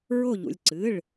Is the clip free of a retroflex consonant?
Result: no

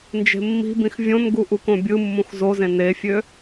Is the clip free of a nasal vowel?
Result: no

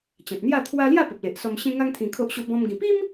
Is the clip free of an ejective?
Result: yes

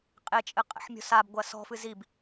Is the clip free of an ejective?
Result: no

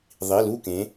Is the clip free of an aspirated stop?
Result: yes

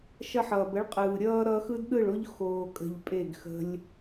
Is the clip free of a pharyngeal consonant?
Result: no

